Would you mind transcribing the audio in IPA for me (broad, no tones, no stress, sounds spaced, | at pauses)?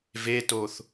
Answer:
v e t o θ